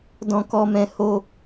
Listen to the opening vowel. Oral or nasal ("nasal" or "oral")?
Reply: nasal